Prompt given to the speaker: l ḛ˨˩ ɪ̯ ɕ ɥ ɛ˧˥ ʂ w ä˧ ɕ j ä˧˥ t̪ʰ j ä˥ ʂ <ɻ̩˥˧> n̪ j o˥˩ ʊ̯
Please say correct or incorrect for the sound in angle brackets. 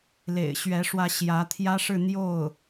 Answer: correct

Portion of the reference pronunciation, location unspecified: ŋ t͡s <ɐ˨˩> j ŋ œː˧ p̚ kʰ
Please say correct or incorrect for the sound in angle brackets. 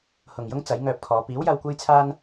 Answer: incorrect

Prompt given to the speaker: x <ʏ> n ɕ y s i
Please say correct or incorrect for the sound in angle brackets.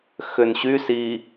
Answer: correct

